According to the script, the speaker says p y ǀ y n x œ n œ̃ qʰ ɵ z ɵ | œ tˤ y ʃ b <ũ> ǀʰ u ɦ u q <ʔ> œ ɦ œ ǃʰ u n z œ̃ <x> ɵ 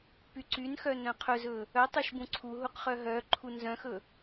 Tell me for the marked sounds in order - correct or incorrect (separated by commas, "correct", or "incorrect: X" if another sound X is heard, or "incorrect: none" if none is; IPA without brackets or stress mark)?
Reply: correct, incorrect: χ, correct